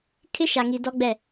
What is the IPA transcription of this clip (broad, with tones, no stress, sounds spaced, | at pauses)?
kʰ ɪ˦ ʃ a˨ ŋ i˨ d ɔ˦ ɡ͡b ɛ˦˨